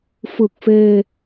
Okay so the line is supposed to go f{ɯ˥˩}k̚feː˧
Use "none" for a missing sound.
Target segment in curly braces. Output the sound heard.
ɯ˨˩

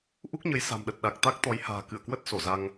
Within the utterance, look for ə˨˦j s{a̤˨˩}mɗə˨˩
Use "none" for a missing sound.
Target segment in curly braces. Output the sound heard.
a̤˨˩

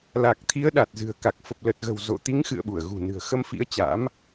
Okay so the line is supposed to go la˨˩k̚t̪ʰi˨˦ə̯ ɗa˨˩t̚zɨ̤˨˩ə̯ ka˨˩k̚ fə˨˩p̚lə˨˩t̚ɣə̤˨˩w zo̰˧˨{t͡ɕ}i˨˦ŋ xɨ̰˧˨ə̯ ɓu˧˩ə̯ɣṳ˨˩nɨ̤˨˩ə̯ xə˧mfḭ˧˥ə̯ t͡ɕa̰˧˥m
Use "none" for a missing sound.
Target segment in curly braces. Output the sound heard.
t̪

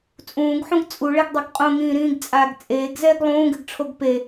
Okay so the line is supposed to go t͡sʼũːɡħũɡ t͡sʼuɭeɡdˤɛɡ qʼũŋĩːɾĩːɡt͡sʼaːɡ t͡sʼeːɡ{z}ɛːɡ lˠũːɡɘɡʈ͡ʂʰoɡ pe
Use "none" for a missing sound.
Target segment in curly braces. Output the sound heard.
z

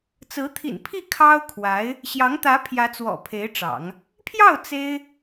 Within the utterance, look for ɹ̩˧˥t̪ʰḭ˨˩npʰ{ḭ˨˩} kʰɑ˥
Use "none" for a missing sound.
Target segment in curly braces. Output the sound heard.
i˥˩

